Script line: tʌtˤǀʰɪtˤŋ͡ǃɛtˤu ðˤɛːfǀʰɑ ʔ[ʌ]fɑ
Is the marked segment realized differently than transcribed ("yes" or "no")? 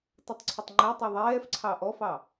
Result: yes